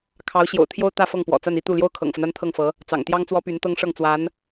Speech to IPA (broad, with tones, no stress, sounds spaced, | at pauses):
kʰ ɑ˧˥ ʊ̯ ɕ j o̰˨˩ ʊ̯ t̪ʰ j o˥ ʊ̯ t̪ ä˥˧ f ɤ˥˩ ŋ p w ɔ̰˨˩ t͡s a˥˧ n i˥˧ t̪ u˥˩ l j o˥ ʊ̯ kʰ ɤ̰˨˩ ŋ f ə˦ n a˥ n t̪ʰ ɤ˥˩ ŋ f ɤ˧˥ | t͡s ɑ̰˨˩ ŋ t̪ j ɑ˥ ŋ t͡s w ɔ˥ p y˧˥ n t̪ ɤ˥ ŋ ʂ ɤ˥˩ ŋ t͡s w a˧˥ n